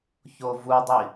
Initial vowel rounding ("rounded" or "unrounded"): rounded